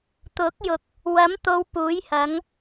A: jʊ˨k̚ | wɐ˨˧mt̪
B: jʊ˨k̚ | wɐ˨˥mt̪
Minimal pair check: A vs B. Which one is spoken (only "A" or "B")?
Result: B